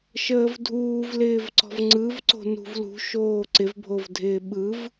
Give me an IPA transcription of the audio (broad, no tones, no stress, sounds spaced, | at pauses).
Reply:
ʃ əː v dʱ uː v l ɪː v ǀ ɔ̤ v ŋ͡ǀ ɯ v ǀ o̤ n ṳ v l ṳ ʃ oː ǀ ɪ v bʱ o v dʱ ɪː ɓ ɯ v